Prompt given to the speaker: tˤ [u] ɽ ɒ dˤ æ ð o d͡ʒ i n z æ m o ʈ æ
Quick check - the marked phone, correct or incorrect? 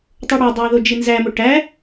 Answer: correct